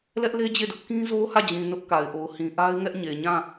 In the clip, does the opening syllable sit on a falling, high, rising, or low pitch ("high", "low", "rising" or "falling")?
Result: high